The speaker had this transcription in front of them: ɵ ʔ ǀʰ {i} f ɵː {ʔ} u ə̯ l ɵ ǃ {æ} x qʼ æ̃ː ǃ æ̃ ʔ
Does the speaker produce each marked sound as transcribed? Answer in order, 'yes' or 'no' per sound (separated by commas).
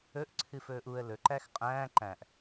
no, yes, yes